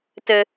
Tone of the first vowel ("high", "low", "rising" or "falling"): high